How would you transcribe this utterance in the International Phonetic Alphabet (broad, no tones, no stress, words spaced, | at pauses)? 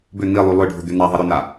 bʏ n̪ilˠy lˠʏɖʱʊd̪ʏ n̪aðˤɪ ɾʏna